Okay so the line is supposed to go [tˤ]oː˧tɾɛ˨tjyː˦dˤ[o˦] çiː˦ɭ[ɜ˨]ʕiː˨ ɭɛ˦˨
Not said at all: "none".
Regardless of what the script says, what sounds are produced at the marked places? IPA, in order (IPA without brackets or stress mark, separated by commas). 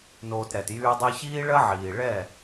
n, o˦, ɜ˦